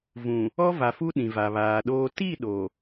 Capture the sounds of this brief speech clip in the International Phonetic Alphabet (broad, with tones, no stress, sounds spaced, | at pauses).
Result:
v ũ˨ | ɔ˦ v a˨ f u˦ ɗ ĩ˨ v a˨ β aː˨ ɗ oː˦ t i˦˨ ɗ o˨